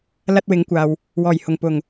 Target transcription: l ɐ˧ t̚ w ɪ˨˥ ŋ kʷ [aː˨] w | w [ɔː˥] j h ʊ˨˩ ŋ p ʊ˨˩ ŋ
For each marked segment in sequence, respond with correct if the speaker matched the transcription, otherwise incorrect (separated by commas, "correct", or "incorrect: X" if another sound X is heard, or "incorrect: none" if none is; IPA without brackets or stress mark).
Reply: correct, incorrect: ɔː˨˩